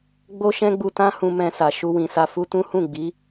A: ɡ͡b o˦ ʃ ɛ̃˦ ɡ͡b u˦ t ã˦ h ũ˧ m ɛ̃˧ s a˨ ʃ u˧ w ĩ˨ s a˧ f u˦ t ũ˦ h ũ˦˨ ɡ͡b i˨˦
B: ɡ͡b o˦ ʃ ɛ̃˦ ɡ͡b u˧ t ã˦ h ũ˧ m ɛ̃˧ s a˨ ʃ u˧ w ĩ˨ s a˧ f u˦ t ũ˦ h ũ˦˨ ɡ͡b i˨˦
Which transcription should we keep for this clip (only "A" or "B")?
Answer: B